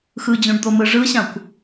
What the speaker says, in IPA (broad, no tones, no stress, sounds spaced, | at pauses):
x ɯ d͡ʑ ũ ɖ d̪ o m ɯ ʐ ɯ ɕ ã kʷ